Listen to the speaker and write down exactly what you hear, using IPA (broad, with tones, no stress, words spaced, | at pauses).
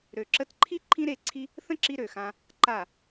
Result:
ɾø˨ǁə˧tǃʰi˦ ǃʰĩ˦ɾe˦˨ǀʰi˦ | θə̃˦ǁi˧ ɾø˨xã˧ | ǃa˦˨